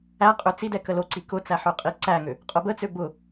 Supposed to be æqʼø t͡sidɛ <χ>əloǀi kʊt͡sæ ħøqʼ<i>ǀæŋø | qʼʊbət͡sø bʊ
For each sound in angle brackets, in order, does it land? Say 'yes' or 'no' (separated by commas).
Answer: no, yes